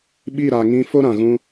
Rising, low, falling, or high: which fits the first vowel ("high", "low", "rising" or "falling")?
falling